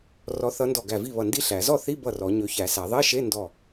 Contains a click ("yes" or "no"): no